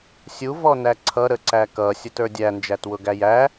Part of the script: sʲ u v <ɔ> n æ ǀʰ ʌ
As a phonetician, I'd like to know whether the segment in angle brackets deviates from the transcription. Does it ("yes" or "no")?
no